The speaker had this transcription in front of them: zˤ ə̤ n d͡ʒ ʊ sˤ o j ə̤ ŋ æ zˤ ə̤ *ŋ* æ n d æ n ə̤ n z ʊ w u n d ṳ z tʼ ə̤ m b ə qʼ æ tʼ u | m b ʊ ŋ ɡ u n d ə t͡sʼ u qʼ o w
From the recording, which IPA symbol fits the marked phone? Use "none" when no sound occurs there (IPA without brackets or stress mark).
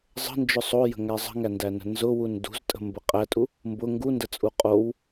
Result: ŋ